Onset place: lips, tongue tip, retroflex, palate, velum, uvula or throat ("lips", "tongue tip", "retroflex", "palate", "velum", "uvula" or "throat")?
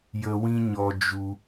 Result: palate